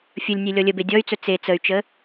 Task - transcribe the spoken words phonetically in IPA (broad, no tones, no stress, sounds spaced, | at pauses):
fʲ ɵ lʲ nʲ e lʲ ɔ lʲ ə b e dʲ ɔ y̯ t͡s ɵ t͡s e t͡s ə y̯ t͡ʃ ə